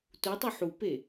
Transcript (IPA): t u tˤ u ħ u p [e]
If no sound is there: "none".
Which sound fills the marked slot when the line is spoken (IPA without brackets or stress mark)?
e